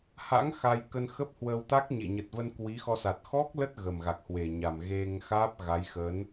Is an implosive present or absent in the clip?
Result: absent